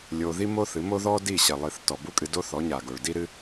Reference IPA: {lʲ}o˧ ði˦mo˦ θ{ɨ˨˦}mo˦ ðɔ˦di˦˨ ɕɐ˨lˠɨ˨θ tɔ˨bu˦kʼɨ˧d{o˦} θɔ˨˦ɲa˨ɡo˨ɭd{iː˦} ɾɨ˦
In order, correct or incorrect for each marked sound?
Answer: correct, correct, correct, incorrect

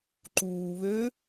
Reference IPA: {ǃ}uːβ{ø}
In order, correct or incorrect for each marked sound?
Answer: correct, correct

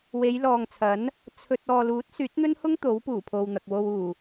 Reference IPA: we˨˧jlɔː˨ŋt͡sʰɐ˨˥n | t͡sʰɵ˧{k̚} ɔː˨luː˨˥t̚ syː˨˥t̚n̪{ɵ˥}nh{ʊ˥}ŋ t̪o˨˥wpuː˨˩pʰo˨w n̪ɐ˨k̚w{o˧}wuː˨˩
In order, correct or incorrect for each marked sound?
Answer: incorrect, correct, correct, correct

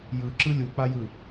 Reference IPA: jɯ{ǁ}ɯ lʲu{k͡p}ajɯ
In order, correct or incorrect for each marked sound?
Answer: correct, correct

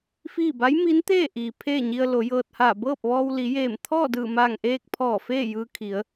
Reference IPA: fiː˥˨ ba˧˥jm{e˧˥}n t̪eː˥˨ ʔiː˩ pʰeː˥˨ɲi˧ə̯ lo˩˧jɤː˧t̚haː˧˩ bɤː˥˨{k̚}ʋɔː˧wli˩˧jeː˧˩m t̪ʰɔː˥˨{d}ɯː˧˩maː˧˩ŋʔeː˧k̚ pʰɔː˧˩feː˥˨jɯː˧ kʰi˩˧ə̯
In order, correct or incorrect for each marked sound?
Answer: incorrect, incorrect, correct

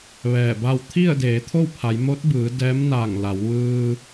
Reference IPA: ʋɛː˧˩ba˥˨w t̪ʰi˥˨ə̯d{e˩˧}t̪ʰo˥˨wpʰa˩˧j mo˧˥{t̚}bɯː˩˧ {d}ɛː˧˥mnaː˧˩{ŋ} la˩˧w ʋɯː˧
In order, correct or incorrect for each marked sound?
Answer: incorrect, correct, correct, correct

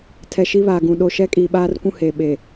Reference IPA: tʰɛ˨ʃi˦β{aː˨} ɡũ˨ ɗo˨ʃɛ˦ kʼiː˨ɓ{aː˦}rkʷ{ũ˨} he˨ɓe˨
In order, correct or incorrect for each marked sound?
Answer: correct, correct, incorrect

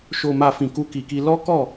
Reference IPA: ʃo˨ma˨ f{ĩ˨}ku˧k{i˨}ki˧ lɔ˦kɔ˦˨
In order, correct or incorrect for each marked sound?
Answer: correct, correct

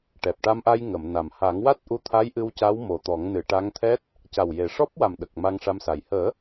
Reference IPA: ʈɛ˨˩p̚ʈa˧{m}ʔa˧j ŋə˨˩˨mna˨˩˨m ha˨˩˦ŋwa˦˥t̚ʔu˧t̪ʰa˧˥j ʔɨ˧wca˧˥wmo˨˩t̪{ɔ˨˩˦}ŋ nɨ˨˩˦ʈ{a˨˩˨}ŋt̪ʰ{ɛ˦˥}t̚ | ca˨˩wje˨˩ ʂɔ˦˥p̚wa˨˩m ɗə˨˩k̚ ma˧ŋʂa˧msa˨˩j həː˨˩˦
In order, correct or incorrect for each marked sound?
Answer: correct, correct, incorrect, correct

